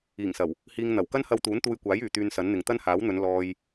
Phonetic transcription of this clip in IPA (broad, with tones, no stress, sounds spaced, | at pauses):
iː˨˩ ŋ s ɐ˨˩ w | h iː˧ ŋ n̪ ɐ˨˩ w k ɐ˥ n h ɐ˧ w t̪ uː˨˥ n t̪ uː˧ j kʷ aː˨˥ j yː˨ t̪ yː˧ n s ɐ˨˥ n n̪ ɪ˨ ŋ t̪ ɐ˥ n h aː˨˥ w n̪ ɵ˨˧ n l ɔː˧ j